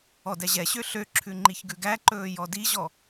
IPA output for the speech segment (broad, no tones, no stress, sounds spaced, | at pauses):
ɔ d ɛ ʑ ɛ ɕ ø ɬ ø ǁʰ ʉ ŋ͡ǃ i ç ɡ ʉ ɡ æ ǃ ɵː j ɔ d i ʑ ɔ